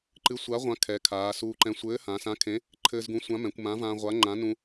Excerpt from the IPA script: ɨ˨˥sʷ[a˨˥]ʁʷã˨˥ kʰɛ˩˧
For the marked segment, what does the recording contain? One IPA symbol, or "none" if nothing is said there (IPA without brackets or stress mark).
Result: a˨˥